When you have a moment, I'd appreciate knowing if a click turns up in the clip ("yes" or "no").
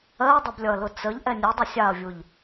no